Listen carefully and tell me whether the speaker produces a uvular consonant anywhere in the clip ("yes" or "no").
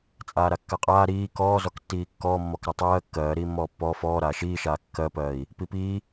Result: yes